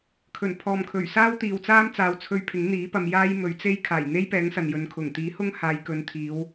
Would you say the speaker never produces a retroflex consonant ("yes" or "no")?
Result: yes